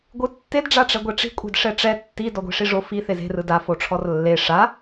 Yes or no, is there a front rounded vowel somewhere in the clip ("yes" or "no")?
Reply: no